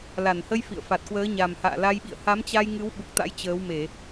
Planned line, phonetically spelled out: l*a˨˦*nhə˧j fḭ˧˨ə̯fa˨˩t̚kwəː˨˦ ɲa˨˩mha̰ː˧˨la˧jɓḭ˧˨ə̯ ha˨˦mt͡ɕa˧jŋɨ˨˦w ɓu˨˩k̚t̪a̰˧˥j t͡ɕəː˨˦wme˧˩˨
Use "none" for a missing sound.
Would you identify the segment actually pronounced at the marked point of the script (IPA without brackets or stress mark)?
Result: a˧˩